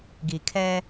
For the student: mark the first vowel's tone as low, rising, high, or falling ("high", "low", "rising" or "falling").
low